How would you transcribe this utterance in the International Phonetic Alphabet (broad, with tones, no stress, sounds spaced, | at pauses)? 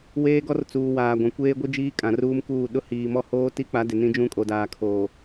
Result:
w eː˦ ɡ ɔ˦ r t͡s uː˨ w aː˨ ɡʷ ã˨ kʷ eː˦ ɡʷ i˦ d͡ʒ iː˦ kʼ ã˨ r uː˦ m k uː˦˨ ɗ ʊ˦ h iː˨ m ɔ˦ h oː˦ t i˦ k͡p a˨˦ d ɪ˨ n ĩ˦ d͡ʒ ũ˦ kʼ o˨ d aː˨ kʰ oː˨